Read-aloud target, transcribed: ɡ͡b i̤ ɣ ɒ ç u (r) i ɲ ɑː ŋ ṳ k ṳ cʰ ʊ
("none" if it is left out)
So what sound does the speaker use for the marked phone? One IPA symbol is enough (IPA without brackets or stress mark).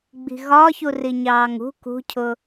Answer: r